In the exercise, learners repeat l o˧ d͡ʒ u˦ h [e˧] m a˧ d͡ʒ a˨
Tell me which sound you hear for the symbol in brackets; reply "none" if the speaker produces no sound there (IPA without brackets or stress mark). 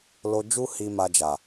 i˧